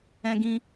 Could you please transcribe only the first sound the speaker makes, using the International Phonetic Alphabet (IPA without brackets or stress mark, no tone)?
ɛ̃